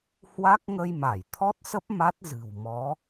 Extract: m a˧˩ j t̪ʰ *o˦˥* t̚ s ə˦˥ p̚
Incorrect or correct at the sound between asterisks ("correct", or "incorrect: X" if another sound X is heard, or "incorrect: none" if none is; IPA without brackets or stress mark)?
incorrect: ɔ˦˥